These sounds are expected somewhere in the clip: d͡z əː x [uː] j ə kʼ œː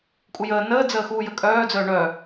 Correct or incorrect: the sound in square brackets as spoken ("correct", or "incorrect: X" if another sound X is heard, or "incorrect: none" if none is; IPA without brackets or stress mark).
correct